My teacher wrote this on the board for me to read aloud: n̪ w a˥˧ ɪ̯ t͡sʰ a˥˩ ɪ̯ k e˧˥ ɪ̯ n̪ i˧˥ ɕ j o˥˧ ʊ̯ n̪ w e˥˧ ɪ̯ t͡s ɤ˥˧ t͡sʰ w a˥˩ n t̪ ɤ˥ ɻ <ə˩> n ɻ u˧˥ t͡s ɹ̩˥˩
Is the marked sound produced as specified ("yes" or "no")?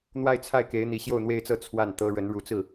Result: no